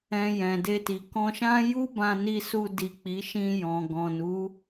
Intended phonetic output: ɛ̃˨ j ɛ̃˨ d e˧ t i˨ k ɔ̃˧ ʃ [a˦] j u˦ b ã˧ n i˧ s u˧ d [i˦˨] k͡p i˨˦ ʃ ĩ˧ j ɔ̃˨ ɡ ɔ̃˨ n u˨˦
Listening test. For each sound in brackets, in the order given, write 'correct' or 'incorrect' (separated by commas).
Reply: incorrect, incorrect